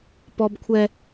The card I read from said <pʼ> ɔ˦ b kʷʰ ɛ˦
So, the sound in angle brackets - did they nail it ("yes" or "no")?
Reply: no